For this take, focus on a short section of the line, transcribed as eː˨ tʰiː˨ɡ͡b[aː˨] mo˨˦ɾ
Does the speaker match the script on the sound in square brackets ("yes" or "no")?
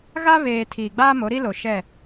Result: no